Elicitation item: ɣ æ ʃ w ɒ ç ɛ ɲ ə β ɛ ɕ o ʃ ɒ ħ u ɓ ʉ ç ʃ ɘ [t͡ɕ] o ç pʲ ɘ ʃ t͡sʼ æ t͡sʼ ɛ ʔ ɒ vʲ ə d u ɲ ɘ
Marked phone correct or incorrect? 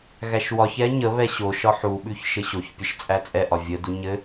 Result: incorrect